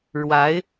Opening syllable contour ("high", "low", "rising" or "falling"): rising